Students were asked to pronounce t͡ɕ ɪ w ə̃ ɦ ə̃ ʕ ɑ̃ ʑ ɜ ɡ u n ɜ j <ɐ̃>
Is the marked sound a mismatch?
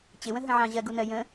yes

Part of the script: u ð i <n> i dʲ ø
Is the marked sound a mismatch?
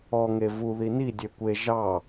no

